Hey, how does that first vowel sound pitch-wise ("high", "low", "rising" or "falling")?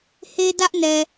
high